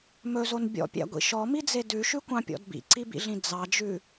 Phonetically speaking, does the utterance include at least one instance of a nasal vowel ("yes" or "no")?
yes